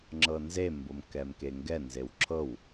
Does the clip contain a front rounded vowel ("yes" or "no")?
no